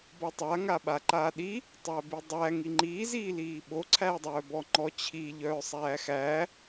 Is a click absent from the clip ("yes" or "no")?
no